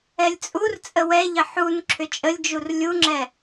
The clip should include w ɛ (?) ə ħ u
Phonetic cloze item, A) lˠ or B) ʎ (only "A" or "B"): B